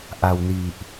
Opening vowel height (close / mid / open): open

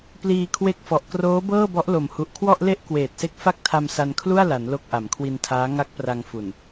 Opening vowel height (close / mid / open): close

